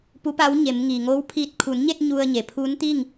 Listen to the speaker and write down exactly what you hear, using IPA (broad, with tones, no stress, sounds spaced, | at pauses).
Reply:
p u˧˥ p a˧˥ w ɲ e˩˧ m ŋ iː˩ ŋ oː˧˥ w pʰ iː˧˩ t̚ kʰ u˩˧ n ɲ e˥˨ t̚ ɲ u˧ ə̯ ɲ e˩ pʰ uː˧˥ n t̪ i˥˨ ŋ